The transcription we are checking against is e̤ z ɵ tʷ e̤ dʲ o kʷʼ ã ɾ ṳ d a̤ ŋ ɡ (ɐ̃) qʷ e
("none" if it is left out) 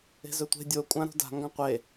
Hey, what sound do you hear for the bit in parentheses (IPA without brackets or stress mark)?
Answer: ã